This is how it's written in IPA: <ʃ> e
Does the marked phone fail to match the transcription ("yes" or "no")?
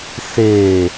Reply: yes